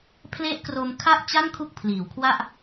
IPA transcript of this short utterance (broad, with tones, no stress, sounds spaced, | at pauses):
pʰ l e˦˥ ʔ k r o˧ m kʰ a˥˩ ʔ t͡ɕ a˥˩ n kʰ u˦˥ k̚ pʰ l iː˩˦ w kʰ w a˥˩ ʔ